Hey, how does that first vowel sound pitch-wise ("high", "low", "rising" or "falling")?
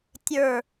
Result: low